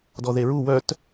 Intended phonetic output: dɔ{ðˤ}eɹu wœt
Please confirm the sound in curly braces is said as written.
no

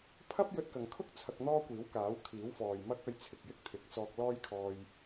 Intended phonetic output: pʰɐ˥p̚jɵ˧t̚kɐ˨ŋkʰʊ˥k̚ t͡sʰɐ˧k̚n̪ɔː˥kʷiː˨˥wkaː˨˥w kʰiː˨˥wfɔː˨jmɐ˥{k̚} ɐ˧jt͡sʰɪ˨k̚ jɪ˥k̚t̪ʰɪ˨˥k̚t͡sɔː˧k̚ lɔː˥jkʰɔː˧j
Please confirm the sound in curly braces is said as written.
yes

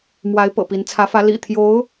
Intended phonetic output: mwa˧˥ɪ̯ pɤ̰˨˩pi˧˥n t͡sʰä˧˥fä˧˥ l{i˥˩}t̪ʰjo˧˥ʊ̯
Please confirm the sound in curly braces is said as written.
no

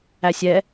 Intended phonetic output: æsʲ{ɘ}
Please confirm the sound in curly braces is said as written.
no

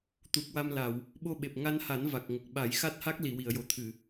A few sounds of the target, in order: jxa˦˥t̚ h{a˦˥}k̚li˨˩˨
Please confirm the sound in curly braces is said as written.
yes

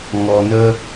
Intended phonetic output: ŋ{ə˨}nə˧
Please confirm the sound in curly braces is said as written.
no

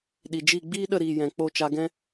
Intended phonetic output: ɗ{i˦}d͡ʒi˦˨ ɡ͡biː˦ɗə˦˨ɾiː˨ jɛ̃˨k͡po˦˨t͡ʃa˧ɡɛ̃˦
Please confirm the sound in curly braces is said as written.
no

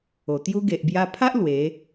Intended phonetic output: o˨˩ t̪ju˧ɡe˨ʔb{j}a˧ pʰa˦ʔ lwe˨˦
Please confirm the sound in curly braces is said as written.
yes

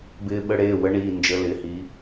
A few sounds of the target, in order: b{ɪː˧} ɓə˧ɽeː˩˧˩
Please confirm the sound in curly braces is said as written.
yes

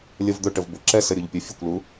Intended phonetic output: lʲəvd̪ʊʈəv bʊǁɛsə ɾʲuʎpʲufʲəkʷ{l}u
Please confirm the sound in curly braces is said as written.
yes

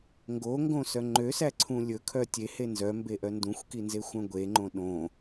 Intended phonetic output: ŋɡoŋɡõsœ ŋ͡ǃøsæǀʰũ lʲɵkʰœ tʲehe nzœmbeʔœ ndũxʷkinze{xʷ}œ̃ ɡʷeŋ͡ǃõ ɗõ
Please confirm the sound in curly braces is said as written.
yes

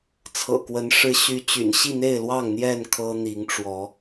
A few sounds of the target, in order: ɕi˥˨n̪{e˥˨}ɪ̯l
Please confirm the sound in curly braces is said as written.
yes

